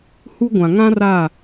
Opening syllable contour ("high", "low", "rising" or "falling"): high